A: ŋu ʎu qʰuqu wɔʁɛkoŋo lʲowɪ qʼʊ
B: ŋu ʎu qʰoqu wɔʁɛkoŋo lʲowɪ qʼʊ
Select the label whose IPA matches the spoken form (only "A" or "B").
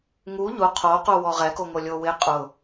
B